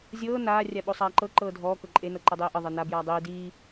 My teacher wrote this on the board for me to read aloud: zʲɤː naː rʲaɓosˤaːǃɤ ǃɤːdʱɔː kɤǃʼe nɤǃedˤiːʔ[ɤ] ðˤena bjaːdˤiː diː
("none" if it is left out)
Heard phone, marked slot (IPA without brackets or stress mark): ɤ